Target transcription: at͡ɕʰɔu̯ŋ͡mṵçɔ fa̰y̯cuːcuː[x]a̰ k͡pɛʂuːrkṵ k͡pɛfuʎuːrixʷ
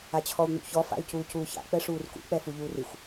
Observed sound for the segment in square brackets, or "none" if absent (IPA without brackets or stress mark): ç